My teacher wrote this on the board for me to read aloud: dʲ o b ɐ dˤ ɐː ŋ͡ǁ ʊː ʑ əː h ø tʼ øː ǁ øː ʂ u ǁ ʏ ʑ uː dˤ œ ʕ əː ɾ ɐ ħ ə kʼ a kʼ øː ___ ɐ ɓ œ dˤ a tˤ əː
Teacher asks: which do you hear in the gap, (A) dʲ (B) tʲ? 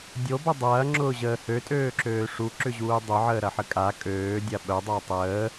A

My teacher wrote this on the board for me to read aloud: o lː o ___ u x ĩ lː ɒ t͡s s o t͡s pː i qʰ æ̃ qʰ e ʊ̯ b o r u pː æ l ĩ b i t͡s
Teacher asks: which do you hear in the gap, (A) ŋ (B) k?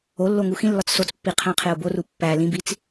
A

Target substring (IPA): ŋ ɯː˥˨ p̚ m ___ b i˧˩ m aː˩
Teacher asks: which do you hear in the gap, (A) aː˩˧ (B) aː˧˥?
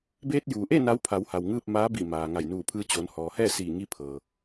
B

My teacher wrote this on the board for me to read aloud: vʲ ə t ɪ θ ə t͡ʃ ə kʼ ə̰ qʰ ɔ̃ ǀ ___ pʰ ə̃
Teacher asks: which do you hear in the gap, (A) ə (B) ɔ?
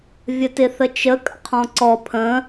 B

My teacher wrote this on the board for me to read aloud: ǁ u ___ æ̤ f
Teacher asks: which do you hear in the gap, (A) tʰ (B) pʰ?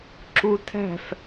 A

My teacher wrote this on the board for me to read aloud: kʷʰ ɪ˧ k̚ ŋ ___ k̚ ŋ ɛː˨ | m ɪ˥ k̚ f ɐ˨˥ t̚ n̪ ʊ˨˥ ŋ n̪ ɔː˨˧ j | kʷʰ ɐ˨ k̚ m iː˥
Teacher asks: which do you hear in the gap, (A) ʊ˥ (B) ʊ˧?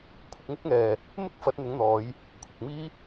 A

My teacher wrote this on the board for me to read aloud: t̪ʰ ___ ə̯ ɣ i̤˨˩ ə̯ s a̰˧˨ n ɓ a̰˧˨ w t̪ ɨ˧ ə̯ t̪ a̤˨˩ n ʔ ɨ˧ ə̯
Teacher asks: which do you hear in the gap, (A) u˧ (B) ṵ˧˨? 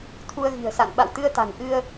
A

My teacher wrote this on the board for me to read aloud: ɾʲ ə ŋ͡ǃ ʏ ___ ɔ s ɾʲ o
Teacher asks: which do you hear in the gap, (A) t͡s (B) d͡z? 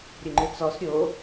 A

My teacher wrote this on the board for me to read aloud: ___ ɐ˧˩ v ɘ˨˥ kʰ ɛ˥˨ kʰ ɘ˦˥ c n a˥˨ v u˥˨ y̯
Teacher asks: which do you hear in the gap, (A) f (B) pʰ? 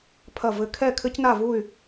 B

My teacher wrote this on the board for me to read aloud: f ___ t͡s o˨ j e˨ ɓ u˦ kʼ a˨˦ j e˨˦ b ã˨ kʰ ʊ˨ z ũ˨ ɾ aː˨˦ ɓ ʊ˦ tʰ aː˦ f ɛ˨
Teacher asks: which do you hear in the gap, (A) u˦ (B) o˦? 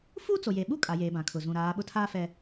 A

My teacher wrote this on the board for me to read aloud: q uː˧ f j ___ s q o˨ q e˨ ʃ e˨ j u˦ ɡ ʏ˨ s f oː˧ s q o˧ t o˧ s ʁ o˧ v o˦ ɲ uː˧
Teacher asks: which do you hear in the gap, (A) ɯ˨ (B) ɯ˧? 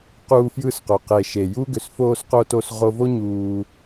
B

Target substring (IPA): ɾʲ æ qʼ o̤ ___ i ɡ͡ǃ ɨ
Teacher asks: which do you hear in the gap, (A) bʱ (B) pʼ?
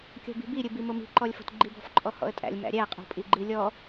B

